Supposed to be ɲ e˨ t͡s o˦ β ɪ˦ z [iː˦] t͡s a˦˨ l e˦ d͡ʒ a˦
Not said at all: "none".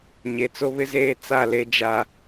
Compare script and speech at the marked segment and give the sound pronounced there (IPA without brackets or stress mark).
eː˦